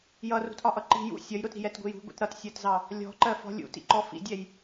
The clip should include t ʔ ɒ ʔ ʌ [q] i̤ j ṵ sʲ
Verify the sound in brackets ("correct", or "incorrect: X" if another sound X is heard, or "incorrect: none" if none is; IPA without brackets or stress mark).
incorrect: ǃ